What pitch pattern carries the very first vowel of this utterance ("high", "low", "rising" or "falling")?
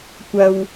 low